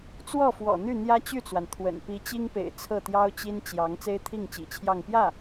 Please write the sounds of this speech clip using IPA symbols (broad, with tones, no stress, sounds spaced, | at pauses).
t͡s w ɔ˥˩ f w ɔ̰˨˩ n̪ y˥˩ n̪ j ä˥ t͡ɕ y˥˩ t͡s w a˩ n t̪ʰ w ə̰˨˩ n p i˧˥ t͡ɕ i˥ ŋ p ḛ˨˩ ɪ̯ t͡sʰ ɤ˥˩ t̪ j ɑ˥ ʊ̯ t͡ɕ i˥ n t͡ɕ j ɑ˧˥ ŋ t͡s e˥ ɪ̯ t̪ʰ i˥˩ ŋ t͡ɕ ḭ˨˩ t͡ɕʰ j ɑ˥˧ ŋ p j ä˥˩